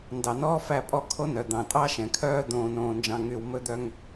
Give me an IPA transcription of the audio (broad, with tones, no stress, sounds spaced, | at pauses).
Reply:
n d ɑ˨ n ɔː˦ f æ˦˨ pʼ ɔ˦˨ kʰ o˦ n œ˨ d̪ ɑ̃˨ tʼ ɑ˦ ʃ ɛ̃˨ kʰ œː˦ d̪ õː˨ n õː˨ n d͡ʒ ɑ̃˨ ŋ y˨ w m ɵ˦ d̪ œ˦ ŋ